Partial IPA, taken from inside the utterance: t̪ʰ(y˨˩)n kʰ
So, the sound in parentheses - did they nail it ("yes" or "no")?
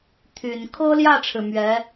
yes